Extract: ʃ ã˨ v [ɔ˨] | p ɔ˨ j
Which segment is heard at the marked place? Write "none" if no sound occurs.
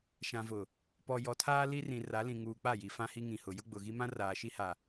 ʊ˨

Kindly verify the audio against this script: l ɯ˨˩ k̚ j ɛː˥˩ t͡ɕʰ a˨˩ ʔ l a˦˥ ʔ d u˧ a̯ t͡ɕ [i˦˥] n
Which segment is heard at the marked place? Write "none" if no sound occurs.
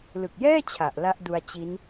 i˦˥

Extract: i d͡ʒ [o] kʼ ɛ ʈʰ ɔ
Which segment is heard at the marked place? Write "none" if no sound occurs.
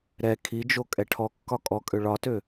o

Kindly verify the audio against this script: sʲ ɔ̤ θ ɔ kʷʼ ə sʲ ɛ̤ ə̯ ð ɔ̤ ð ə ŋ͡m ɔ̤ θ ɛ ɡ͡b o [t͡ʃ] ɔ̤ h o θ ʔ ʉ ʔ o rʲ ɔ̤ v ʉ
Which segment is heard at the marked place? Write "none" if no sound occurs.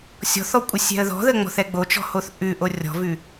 t͡ʃ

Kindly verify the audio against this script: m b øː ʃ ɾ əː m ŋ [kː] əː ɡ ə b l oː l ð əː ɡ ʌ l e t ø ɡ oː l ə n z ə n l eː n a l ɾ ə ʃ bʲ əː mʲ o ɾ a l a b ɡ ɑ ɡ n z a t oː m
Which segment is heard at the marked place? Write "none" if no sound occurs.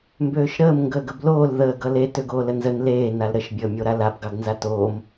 ɡ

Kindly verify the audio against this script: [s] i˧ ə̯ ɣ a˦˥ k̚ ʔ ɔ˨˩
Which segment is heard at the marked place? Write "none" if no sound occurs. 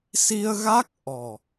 s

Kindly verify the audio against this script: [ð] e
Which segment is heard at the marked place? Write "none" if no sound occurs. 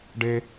ɖ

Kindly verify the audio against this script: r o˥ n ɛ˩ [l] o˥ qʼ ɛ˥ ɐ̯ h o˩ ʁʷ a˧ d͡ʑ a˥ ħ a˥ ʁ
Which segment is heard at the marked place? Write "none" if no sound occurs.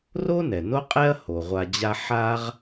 n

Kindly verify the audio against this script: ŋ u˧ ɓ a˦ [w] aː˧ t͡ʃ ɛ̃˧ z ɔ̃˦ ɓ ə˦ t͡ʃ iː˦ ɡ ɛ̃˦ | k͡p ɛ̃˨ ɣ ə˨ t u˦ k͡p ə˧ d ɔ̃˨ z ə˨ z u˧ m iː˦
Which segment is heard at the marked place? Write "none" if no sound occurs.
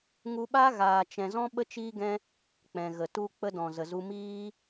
ɣ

